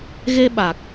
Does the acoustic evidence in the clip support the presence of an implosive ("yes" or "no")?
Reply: yes